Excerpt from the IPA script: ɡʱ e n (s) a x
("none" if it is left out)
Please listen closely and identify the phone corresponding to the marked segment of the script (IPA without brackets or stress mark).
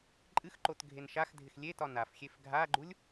ʃ